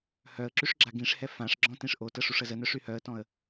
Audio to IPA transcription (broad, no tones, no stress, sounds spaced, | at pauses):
h œ ə̯ ǁ y ʂ ɡ͡ǁ a ɡ ĩ ʂ h ɛ f ã ʂ ɡ͡ǁ ɔ̃ t ĩ ʂ ʔ o t ə ʂ u ʂ ə z ə n œ ʂ y h œ ə̯ t ɔ̃ ə̯